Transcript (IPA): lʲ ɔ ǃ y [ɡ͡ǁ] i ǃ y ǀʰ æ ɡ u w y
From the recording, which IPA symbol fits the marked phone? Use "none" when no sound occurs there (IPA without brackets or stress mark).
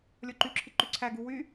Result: ǁʰ